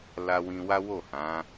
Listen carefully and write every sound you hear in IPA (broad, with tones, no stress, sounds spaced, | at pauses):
l a˧ w ĩ˧ w a˦ w o˦˨ h ã˨˦